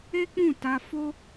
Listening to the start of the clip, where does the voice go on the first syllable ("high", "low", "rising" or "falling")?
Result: high